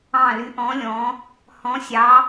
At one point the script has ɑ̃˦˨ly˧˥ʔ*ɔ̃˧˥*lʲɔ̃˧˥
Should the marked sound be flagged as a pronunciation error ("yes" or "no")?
no